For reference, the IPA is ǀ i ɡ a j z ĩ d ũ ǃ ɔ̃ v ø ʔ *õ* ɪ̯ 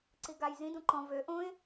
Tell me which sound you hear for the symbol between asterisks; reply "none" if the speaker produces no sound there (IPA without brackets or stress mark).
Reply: õ